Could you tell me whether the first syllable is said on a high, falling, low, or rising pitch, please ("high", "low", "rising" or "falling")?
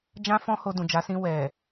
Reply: high